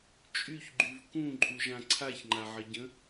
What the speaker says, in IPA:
t͡ʃʼ y ç ɡ͡ǃ y v k ũ ǃʼ u ʒ ã ǀʰ a ç ŋ͡ǃ a ʕ ə ɟ ə̃

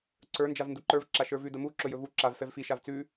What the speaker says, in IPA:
ǀ ə˞ n d͡ʒ a v n d u ǃ ə˞ v ǁ a ʃ ə˞ v ʉ d ə m u ǁ ɵ j ɵ v u ǁ a v f ɛ v f i ʃ a v t͡s ʉ

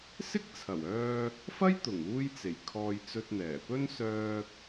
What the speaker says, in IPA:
s ɪ˥ k̚ t͡sʰ ɐ˨˩ w œː˧ | f ɐ˥ j t̪ ʊ˨˩ ŋ uː˥ j t͡s e˨˩ j kʰ ɔː˧ j t͡s ɵ˧ t̚ n̪ ɛː˨˩ p ɵ˥ n s œː˧ k̚

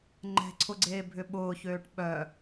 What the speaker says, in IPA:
ŋ͡ǃ ɛ̤ ǀʰ ʊ ɡ͡ǀ eː bʱ ʏ ɓ ʊː ç øː ʈ ɓ œ

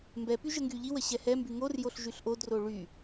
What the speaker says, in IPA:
m b ɛ p y ʒ ə ŋ ɡ y ʎ i w ə ɕ ɛ h ɛ m b y ŋ o r j o ɬ ʒ y ɬ ʔ o d r o ɭ y

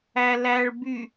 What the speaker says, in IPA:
æ l æ ɭ b y

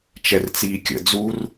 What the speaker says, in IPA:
t͡ʃ ɛ r t͡s iː kʲ ə̰ d͡z u r

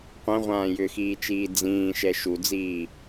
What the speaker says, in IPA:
qʷ ɛ̃ ʁʷ ãː j ʏ x iː t͡ʃ iː d͡z ĩː ʃ ɛ ʃ u d͡z iː

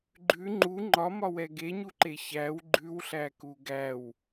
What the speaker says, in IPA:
ɡ͡ǃ ʉ ŋ͡ǃ u ŋ͡ǃ ɒ m ɒ w ɛ ɡ e ɲ u ǃ e ç æ w ɡ͡ǃ ʉ w ɬ æ k u ɡ æ w

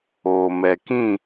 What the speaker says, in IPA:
oː˨ m ɛ˨ k ĩ˦˨

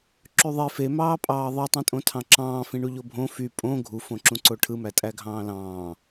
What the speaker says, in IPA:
ǁ y ðˤ e f e m ɑː pʼ ɑː ðˤ ɯ tˤ ĩ tʼ õ tʰ ɑ̃ ǁ ɑ̃ː f ĩ ɳ u ʎ o bʱ õ f y pʼ õ ɡʱ u f õ ǁ ũ ǀ o ʈʰ ɯ m æ tʼ æ ɡʱ ɑ̃ː l ɑ̃ː

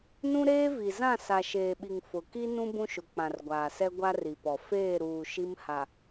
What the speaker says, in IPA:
n ũ˦ ɾ eː˦ v i˨ z ã˦˨ s a˨ ʃ eː˨ ɓ i˨ ŋ f ʊ˨ k i˦ n ũ˦ b ũ˦ ʃ ʊ˨ k͡p ã˨ r ɡʷ aː˨ s ɛ˦ ɡʷ a˦ r i˨ p ɔ˨ f eː˦˨ ɾ uː˨ ʃ i˦ m h a˨

